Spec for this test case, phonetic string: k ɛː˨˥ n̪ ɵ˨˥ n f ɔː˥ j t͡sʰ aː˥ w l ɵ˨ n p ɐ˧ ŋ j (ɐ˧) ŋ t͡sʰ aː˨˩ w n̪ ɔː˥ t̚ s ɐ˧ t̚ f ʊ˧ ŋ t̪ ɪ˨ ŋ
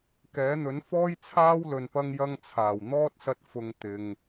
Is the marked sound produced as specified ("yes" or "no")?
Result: yes